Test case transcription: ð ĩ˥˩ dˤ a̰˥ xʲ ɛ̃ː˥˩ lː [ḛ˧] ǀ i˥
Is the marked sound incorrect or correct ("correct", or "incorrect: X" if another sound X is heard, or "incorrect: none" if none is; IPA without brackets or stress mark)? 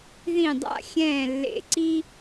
correct